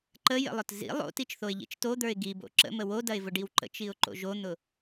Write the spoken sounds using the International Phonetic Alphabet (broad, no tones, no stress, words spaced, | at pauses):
ǃəjə̰lˠʊt zḭ lˠo̰tit͡ʃθoɪ̯ʎḭt͡ʃ tod̪ə˞ɪ̯ ɡibo̰ ǁə̰mə wodɐɪ̯vʊɖiw ǃə̰t͡ʃiʊ̯ǃo̰ ʒon̪ʊ